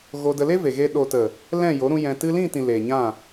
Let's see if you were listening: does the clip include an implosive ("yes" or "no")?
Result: yes